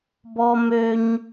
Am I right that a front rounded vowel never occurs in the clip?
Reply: no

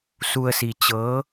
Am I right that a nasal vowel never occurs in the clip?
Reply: yes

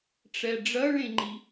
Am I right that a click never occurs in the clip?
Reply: no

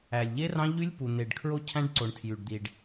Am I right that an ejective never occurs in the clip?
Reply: yes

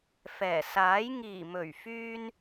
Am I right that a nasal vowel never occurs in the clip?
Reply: yes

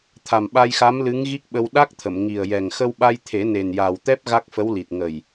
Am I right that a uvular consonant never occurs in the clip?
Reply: yes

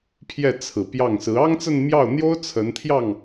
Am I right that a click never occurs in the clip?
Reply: yes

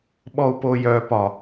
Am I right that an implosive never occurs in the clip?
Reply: no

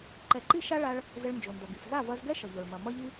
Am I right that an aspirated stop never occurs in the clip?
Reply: yes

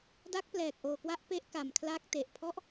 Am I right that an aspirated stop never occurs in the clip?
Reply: no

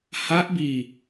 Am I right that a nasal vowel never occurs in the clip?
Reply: yes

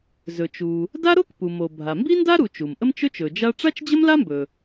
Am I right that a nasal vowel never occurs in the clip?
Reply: yes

